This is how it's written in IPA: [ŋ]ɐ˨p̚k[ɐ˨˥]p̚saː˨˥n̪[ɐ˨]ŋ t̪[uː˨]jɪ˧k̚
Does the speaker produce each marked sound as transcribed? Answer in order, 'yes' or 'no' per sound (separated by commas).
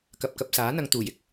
no, no, yes, no